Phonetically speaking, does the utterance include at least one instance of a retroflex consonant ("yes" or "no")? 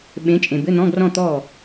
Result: no